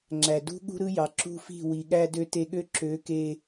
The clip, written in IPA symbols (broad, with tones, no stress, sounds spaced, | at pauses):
ŋ͡ǁ æ˨ d ṳ˦ ɠ ṳ˦ ɾ ɯ˦ j ɑ˨ ǁ ṳ˦ f i̤˦˨ w i˨ ɠ æ˧ d ø˧ t e˧ ɠ ø˦ ǁ ø˨˦ k e˧